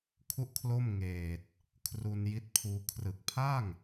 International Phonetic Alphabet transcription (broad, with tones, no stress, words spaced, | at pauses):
kʰu˥˩ʔkʰlo˥˩mŋeː˨˩t̚ | kʰru˧n ji˦˥t̚pʰuː˧ kʰrɯ˨˩k̚ pʰa˥˩ŋ